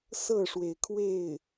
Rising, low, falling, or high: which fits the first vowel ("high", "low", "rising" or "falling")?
falling